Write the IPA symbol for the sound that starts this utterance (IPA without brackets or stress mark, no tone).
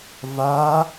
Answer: v